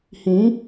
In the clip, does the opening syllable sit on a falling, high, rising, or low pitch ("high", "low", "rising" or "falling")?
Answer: rising